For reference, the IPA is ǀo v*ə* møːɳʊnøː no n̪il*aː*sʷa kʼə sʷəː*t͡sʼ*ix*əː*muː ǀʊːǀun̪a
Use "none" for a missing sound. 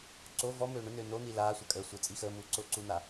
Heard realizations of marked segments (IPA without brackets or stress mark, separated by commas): ɔ, aː, t͡sʼ, əː